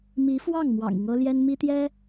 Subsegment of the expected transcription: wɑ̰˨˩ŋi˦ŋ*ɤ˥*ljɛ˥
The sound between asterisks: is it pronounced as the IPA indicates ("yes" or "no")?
yes